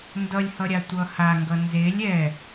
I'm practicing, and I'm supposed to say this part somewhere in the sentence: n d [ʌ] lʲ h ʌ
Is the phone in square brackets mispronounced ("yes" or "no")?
no